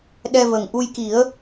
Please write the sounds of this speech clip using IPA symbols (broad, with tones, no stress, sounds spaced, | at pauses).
ɗ ɛ˧ v ə˨˩ ŋ ʔ u˧ j k i˨˩˦ ə̯